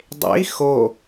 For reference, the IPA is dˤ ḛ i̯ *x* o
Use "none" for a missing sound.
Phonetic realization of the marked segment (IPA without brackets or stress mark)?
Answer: x